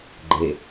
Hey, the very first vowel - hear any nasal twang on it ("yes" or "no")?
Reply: no